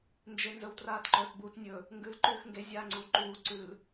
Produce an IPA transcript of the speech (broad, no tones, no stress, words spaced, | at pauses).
nd͡ʒenzɵwtraːtǃɵt buːtnʲɵ | ŋɡʉl ǃʉːxŋɡe zʲaːŋ͡ǀuːǃuː ǀʉl